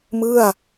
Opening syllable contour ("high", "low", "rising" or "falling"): falling